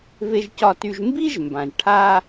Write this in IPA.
v e˧ ʒ c ɒ˧ t y˧ ʒ m b i˥ ʒ m b ã˩ ʒ ʈʰ a˧

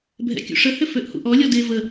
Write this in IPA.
bʱ ɛ̰ kʲ ṵ ʂ ə h ʏ f ø ʔ h ṵ ʔ ɔ lʲ ɔ d e v ə

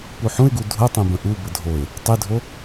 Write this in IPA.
p u ħ ũ ɪ̯ ɡ u dʱ ʊ tˤ ẽ b ə̃ ʔ u b ə dʱ o ɪ̯ | tˤ e dʱ o

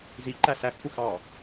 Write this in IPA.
z i ǃ æ s æ x kʷ ə x ɑ

